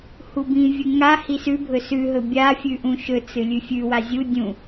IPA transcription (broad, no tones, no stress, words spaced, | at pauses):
hubĩvʲɨ ŋa hisʉbʱɵ sʉɦɵ bʲa fʲʉʔũʃɵt͡sɨ lʲʉfʲʉwa zʲu dʲũ